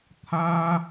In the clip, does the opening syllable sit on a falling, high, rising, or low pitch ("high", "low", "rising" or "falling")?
high